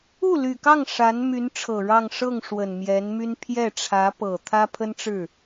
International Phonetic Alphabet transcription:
u˥˩ly˨˩kɑ˥˩ŋ ʂa˧˥n my˧˥nʈ͡ʂʰɤ˨˩ ɻɑ˥˧ŋ ʂɤ˥˩ŋ ʂwə˨˩nmjɛ˧˥nmy˥n pʰjɛ˥˩ʈ͡ʂʰä˧˥pɤ˨˩ t̪ʰä˥pʰə˥nʈ͡ʂɻ̩˥˩

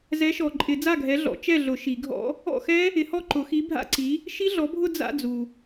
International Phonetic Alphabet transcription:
zɛ˨˥ʃɔ˨ǃʼɪ˨˩˦ d͡za˥˩ɡʱɛ˨˥ɮɔ̰˨˩˦ t͡ʃɛ˥˩ɮʊ˨˩˦ ʃi˨˩˦ɡʱɔ̰˦˥ | ɔ̰˥˩xɛ˦˥ | ɪ˨˥hɔ˥˩ ǃʊ˨˩˦xi˨˥bʱa̰˦˥ǀi˨˥ | ʃi˦˥ɮɔ˨˥bʱʊ˥˧ d͡za̰˥˧d͡zu˨

